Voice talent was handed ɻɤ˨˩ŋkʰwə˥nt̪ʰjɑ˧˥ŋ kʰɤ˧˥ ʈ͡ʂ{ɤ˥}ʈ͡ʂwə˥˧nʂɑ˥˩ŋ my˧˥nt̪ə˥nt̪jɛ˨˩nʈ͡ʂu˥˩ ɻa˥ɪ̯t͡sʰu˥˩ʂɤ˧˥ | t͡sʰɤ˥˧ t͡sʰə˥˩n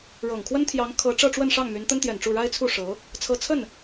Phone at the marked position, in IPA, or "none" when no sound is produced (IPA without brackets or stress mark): ɤ˥˧